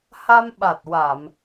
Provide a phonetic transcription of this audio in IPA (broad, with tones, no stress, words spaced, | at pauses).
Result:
ha˧mɓa˨˩t̚wa˨˩˨m